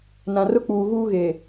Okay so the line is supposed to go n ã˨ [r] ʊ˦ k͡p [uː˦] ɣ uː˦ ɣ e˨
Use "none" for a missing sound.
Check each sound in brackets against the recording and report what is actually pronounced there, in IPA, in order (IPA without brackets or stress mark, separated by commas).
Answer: r, uː˨